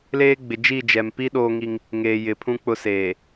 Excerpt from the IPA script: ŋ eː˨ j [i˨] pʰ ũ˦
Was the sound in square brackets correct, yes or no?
no